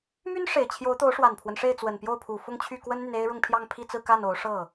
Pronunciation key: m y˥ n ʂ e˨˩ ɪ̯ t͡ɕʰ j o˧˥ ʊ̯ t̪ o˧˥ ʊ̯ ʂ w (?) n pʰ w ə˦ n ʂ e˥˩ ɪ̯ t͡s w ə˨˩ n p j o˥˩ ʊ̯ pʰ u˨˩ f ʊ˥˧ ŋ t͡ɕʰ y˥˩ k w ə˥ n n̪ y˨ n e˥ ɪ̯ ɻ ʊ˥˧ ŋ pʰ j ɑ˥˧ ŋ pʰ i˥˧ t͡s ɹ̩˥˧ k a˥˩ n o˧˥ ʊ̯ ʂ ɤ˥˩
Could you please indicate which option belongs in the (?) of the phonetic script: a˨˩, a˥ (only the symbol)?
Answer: a˨˩